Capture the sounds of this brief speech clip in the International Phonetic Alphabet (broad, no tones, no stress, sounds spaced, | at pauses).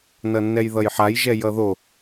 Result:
n ʌ nː ɛ j ð ʌ j ħ a j ʒ ɛ j ʌ ð o